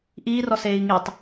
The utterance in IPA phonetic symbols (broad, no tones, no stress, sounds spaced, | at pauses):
ʔ iː r ɔ s eː i̯ ŋ i tˤ